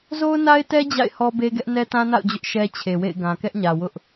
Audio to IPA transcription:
z o˦ ʊ̯ n a˦ ɪ̯ t ɛ˦ d͡ʑ a̰˦˨ ɪ̯ h ɔ˦ b e˦ ɡ ɛ˦ ʔ n ɛ˦ t ã˦ n a̰˦˨ ʊ̯ d͡ʑ ʊ˦ ʔ ʃ ɛ˦ t͡ɕʰ e˨ w ḛ˦˨ ɪ̯ ɡ ã˨ k ɛ˦ ʔ ɲ ä˨ w ʊ˦ ʔ

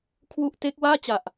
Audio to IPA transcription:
kʰ w u˥˩ ʔ t e˦˥ k̚ w aː˥˩ t͡ɕ a˨˩ ʔ

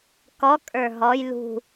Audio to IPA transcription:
k ɔ kʼ ə˞ ɦ ɔ j l ṳ

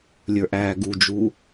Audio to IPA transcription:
lʲ ə˞ ʔ æː ɡ u d͡ʒ u

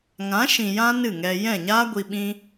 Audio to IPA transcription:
ŋ ã˨˦ ʃ ĩ˨ j ã˦ n ɨ˦˨ ŋ ɛ˧ j ɛ̃˦˨ ɲ aː˦ ɡʷ i˧ ɓ ĩ˦

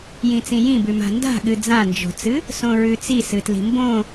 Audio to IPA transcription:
j ĩ t͡s ĩ j ĩ b ʉ m a̤ n d a̤ ɠ ɨ d͡z ã n d͡ʒ o̤ t͡s ɨ | s õ ɹ ʉ t͡s i s ɨ t l i̤ m b õ

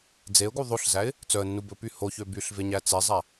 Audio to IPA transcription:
d͡z e ʊ̯ ɡ u ðˤ o ɬ z æ ɪ̯ | t͡s œ ə̯ nː u b ɵ p y h o ç ø b y ɬ v e ɲ æ t͡s e zˤ æ

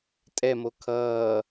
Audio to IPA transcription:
tʼ ɛ m o kʰ ʌː

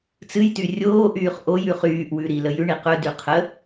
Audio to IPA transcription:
t͡s ɨ j t y rʲ oː ʔ yː χ ʔ o j ʉ χ yː ʔ w ʉ ɾ i l ə j ʉ ɳ i q ɵ d y qʰ ə

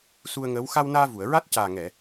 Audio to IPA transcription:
s u˧ ə̯ ŋ əː˧˥ w x a˧ w n aː˧ v u˨˩˨ ə̯ ɹ a˦˥ t̚ c aː˨˩ ŋ ɛ˨˩˨

